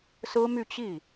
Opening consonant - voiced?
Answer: no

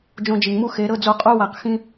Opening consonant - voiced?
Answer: yes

